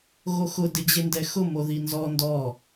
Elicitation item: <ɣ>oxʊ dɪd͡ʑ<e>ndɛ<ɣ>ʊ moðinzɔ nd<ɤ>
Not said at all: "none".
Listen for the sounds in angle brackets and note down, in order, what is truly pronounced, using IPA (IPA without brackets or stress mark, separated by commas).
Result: ɣ, e, x, ɔ